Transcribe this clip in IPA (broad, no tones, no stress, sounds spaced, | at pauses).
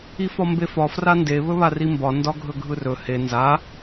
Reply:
i f ɒ m b e f ɒ f r a n d e β ɵ β a r i m b ɒ n d ɒ ɡʱ ɵ ɡʱ ɯ r ɵ h e n z a